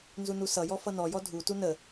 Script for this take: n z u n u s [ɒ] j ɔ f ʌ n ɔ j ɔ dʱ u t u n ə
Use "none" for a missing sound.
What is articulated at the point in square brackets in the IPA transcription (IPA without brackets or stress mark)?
ʌ